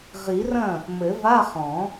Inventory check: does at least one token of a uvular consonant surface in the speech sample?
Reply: yes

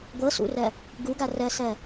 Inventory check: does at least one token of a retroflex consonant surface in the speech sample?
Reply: no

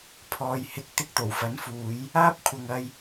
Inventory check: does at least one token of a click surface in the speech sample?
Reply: no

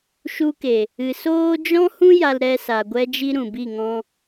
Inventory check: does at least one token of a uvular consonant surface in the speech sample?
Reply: no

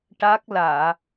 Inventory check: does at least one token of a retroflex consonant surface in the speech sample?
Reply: yes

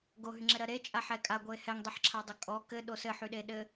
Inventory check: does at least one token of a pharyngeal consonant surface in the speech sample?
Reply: yes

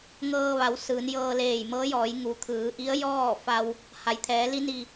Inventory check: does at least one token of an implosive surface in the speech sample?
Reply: no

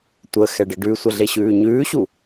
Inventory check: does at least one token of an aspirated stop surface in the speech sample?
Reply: no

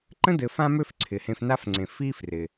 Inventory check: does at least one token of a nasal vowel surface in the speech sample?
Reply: yes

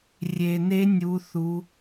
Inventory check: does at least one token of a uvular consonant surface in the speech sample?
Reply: no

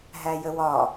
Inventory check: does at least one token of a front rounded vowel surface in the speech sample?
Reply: no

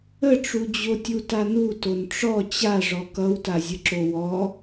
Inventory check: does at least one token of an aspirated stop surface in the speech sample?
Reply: no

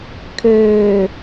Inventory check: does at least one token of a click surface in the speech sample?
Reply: no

